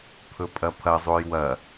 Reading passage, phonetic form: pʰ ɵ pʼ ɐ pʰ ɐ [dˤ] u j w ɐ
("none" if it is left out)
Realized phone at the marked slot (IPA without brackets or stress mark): zˤ